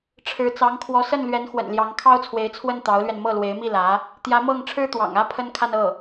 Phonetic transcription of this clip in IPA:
ʈ͡ʂʰ ɻ̩˧˥ t͡s ɑ˧˥ ŋ kʰ w ɔ˧˥ s ə˥˩ n l ɥ ɛ˧˥ n x w ə̰˨˩ n l j ɑ˧˥ ŋ kʰ ɑ˥ ʊ̯ t͡sʰ w e˧˥ ɪ̯ t͡sʰ w ə˥˩ n t̪ ɑ˧˥ ʊ̯ l ɥ ɛ˧ n m ɤ˥˩ l w e˧˥ ɪ̯ m i˥˩ l ä˧˥ | t̪ j ä˧˥ m ɤ˥˩ ŋ ʈ͡ʂʰ ɻ̩˥ t̪ w ɑ̰˨˩ ŋ ä˥ pʰ ə˥ n kʰ a˥˧ n ɤ˥˩

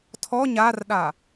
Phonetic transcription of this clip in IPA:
tʰ ɔ ɲ a r ɗ a

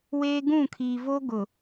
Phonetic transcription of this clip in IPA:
w eː˦ ɡ ũ˦˨ kʰ iː˨ v oː˦ ɡ ʊ˨

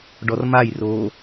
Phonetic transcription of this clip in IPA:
ɖ ɔ r m a j r oː

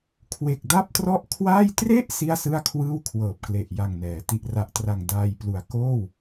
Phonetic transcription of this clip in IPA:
kʰ w e˨˩ k̚ d a˥˩ p̚ t r ɔ˥˩ ʔ kʰ w aː˥˩ j t r e˥˩ ʔ s i˥˩ a̯ s ɯ˥˩ a̯ kʰ w ɯː˥˩ w kʰ w ɤː˨˩ p̚ k l e˨˩ ʔ j a˨˩ ŋ n ɛː˩˦ t i˨˩ ʔ r a˨˩ ʔ t r a˨˩ ŋ d aː˧ j p l u˨˩ a̯ k oː˥˩ w

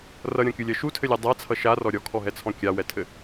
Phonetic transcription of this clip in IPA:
r ʌ ɾʲ ɔ̃ kʲ u lʲ ɜ ʃ u tʰ ɘ lʲ a dˤ a t͡sʰ ʌ ʃ a r ɔ ɾʲ ɔ kʰ ɔ ɦ ɛ t͡sʰ ɔ̃ kʲ a w ɛ tʰ ɘ

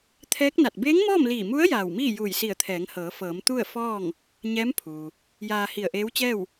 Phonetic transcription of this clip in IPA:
t̪ʰ ɛː˧˥ k̚ n a˧˩ t̚ b eː˧˥ ŋ m ɔː˥˨ m l iː˧˩ m u˧˥ ə̯ j aː˧˩ w m iː˥˨ j uː˧˩ j s i˧˩ ə̯ t̪ʰ ɛː˩˧ ŋ h ɤː˩˧ f ɤː˩˧ m t̪ u˥˨ ə̯ f ɔː˥˨ ŋ | ɲ ɛː˧˥ m pʰ uː˩ | j aː˧ h i˧˩ ə̯ ʔ eː˧˥ w t͡ɕ ɛː˥˨ w

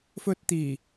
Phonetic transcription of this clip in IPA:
f ɵ˧ t̚ t̪ iː˨˩

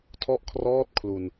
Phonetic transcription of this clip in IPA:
tʰ ɔ˦˥ ʔ kʰ r ɔː˦˥ t̚ kʰ l u˨˩ n

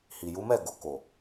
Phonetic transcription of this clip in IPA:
h i˨ j u˨˦ m ɛ˦˨ ɡ o˨ k o˨

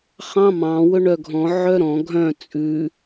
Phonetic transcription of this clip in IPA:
χ ɑ̃ m ɑ̃ w ɵ ɳ œ ɡʱ ɔ̃ ʕ œ ɾ ɔ̃ ɡʱ œ̃ t͡sʼ ʉ

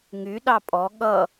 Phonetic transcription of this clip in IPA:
ŋ y ɗ ɑ pʼ ɔ ɠ ʌ

